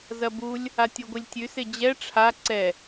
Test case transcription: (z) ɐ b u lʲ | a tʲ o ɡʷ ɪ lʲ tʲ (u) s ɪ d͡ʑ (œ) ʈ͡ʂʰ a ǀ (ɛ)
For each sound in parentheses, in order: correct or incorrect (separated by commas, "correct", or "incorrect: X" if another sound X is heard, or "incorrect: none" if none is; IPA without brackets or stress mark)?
correct, incorrect: ʉ, incorrect: ɛ, correct